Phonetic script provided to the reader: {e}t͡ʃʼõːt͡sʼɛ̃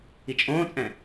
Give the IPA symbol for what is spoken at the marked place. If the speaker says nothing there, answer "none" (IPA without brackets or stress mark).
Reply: i